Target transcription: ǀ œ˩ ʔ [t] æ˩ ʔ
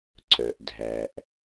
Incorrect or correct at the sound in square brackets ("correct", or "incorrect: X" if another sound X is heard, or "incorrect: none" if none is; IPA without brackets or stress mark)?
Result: incorrect: dʱ